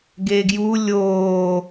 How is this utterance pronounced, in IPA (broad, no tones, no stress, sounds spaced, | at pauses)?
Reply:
ɡ e ɡ j u lʲ oː